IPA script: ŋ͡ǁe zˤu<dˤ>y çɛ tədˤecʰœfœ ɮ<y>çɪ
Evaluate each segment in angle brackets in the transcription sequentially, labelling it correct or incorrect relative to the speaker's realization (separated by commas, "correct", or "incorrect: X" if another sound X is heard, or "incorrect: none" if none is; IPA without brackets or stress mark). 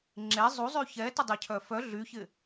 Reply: incorrect: zˤ, correct